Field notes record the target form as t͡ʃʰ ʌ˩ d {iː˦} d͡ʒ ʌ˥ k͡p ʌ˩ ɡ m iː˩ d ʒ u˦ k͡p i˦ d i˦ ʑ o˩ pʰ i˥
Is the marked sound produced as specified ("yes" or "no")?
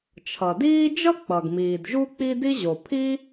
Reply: yes